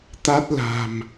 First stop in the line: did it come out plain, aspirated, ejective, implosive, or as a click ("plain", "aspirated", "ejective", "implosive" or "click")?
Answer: plain